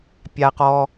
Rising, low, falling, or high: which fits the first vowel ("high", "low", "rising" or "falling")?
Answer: low